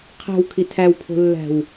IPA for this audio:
qʰ æ̤ w kʰ i tʰ æ w pʰ o̤ lː æ̤ w

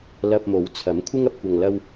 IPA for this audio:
l ɐ˧ p̚ m o˨˥ w t͡sʰ ɐ˨˥ m kʷʰ ɪ˥ ŋ ɐ˧ p̚ kʷ ɐ˧ ŋ l ɐ˥ w

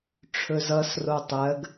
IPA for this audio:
ʈ͡ʂʰ ɵ z ʌ s r o tˤ ɜ ɡ

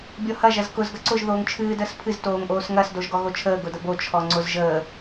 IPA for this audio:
bʲ ɔ h ɐ ʒ ɐ z k ʊ z ɡ ɐ ǀ ʊ ʒ ð oː ŋ t͡ʃʰ ɨː d əː s pʰ ɨ z t oː ŋ ʔ oː s ŋ ɐ s d o ʒ ɡ ɔ ɣ o t͡ʃʰ əː ɡ ʊ d ə b o t͡ʃʰ ɔ ŋ͡ǀ ʊ z ʒ əː

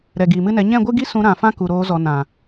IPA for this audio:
ɾ ɛ˨ ɡ iː˨ m ɨ˦ n ɛ˨˦ ɲ ɛ̃˦˨ ɡʷ ɨ˦ ɡ i˦ s ũ˧ ɾ ã˨ f ã˦ k u˨ ɾ oː˧ z ɔ˨ n ã˨

